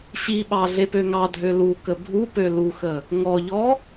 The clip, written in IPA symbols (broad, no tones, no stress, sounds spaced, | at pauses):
ɕ i ɓ ɑ ɮ e p ø ŋ ɑ dʱ ø l u k ə bʱ u p ø l u x ə | ŋ ɔ ʎ ɔ